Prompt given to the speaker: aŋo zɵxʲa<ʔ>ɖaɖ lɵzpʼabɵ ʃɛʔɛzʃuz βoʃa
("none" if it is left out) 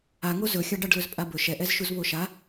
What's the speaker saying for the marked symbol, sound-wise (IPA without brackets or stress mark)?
none